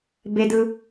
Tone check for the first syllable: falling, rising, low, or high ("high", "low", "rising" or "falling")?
high